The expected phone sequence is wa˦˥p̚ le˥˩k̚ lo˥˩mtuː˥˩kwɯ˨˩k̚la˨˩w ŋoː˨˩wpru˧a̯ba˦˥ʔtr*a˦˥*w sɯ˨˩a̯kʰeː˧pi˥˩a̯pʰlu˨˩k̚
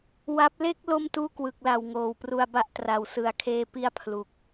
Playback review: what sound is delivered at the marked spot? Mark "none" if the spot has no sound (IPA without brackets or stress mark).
a˨˩